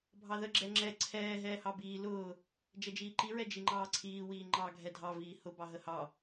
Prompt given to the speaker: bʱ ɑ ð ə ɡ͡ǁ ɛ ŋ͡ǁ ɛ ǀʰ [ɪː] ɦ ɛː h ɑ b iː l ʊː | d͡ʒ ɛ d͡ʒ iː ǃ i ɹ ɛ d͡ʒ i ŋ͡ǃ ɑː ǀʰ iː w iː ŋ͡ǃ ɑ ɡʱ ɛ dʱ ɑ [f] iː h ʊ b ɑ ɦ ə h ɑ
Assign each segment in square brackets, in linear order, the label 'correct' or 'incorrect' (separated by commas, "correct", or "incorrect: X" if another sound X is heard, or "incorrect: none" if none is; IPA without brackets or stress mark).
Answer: incorrect: ɛː, incorrect: v